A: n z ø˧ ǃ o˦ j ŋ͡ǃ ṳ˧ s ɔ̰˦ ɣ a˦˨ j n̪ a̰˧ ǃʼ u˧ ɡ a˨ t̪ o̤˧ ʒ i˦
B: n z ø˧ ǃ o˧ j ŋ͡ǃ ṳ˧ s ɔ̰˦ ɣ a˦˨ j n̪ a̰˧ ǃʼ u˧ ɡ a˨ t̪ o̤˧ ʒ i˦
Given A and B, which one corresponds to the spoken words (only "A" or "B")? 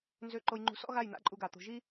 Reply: B